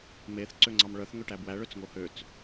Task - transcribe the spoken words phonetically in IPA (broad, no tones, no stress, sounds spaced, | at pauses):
m e θ ǀ ø ŋ͡ǀ ɑ m ɭ œ θ ŋ ø ʈ æ b w æ ɭ ø t͡s ŋ o h ø t͡s